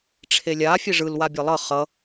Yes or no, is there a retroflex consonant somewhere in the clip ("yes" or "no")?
yes